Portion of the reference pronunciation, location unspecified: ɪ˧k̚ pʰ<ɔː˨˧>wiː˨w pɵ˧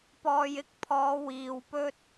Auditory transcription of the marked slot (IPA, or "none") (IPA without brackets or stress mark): ɔː˨˧